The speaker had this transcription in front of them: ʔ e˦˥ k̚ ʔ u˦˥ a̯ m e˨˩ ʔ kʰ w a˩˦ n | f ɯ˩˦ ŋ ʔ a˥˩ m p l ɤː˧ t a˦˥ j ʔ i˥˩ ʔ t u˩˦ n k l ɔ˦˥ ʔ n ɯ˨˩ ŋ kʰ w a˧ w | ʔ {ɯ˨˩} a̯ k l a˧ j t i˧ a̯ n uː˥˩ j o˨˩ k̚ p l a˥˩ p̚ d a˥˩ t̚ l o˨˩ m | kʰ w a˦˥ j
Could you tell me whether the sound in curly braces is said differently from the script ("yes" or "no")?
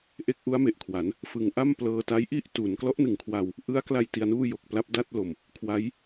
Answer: yes